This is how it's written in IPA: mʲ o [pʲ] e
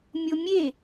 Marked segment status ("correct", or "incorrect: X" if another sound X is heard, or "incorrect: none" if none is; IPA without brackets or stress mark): incorrect: mʲ